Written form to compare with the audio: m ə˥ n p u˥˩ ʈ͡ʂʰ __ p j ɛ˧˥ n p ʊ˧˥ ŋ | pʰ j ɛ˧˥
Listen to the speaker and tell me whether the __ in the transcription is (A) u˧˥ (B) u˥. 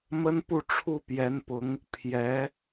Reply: B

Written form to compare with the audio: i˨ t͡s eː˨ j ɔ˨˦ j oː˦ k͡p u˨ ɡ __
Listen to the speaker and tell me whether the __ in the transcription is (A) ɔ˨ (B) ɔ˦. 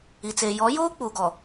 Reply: A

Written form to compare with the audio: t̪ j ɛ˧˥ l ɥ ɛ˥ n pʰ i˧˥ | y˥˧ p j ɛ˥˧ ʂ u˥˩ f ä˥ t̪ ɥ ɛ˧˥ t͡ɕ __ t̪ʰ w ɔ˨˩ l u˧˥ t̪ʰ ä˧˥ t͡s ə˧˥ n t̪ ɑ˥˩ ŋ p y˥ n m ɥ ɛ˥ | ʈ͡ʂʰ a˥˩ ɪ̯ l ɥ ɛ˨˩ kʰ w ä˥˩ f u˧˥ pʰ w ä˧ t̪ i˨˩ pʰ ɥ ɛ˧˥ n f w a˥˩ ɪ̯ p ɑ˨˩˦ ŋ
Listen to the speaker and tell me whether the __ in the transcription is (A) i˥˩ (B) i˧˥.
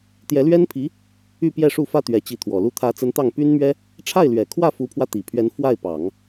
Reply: B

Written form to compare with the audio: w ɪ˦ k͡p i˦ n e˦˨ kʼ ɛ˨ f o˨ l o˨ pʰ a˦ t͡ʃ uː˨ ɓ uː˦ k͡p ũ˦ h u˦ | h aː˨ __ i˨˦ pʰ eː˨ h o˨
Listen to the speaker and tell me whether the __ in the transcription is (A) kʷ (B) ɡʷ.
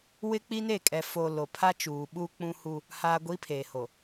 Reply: B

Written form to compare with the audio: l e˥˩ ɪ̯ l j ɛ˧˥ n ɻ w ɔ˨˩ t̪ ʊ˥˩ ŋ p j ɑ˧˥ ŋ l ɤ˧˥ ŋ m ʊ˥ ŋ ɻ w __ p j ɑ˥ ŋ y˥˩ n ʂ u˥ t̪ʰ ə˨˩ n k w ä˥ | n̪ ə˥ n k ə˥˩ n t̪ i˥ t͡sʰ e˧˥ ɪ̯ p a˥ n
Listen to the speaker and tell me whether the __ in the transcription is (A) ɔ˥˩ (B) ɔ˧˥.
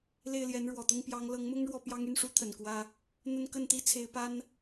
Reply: A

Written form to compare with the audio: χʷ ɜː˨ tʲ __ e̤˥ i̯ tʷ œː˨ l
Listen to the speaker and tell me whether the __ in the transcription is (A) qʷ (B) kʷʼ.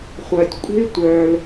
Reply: B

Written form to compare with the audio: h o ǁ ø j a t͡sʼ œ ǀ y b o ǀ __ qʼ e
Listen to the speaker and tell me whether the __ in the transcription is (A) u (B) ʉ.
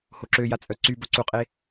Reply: A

